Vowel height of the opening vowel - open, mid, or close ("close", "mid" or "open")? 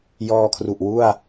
mid